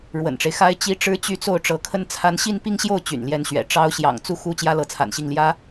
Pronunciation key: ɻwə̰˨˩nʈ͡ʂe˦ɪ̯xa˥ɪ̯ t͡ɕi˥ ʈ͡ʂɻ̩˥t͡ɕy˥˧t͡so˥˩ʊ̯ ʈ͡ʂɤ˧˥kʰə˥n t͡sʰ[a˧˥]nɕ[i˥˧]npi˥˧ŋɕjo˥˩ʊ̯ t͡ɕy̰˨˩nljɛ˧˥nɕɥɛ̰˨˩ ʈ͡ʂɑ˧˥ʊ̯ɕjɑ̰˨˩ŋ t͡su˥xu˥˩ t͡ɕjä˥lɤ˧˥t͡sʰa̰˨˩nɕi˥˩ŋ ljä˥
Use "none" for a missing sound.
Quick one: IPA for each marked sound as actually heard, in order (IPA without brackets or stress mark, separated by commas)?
a˧˥, i˥˧